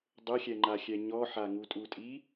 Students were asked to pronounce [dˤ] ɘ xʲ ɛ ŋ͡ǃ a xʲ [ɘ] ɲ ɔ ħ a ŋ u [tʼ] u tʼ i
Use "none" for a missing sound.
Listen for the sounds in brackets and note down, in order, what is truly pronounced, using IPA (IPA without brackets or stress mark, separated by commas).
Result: dˤ, ɛ, tʼ